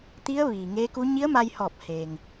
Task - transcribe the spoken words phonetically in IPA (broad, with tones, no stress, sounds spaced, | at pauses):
t̪ i˧˥ ə̯ ʋ iː˩ ŋ eː˧˥ k u˧˥ ɲ i˧˥ ə̯ m a˧ j h ɔː˧˩ p̚ h eː˩ ŋ